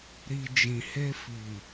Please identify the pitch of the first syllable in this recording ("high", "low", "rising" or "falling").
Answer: low